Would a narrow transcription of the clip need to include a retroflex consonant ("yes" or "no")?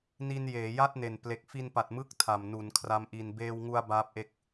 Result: no